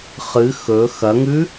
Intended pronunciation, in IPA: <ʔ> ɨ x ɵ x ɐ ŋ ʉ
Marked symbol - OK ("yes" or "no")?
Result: no